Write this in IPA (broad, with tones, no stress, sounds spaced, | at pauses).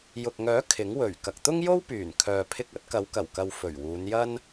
j ʊ˨ k̚ ŋ œː˨˥ kʰ ɪ˨˥ ŋ w ɵ˨˩ ɥ k ɐ˨ k̚ t̪ ʊ˥ ŋ j o˥ w p yː˨˩ n kʰ œː˨ pʰ ɪ˧ k̚ ɐ˨˥ t̚ k ɐ˨˧ w k ɐ˨˩ w k ɐ˨ w f ɵ˨˩ ɥ w uː˨˧ n j ɐ˥ n